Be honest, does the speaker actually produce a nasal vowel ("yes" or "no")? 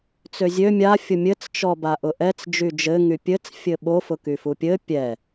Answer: no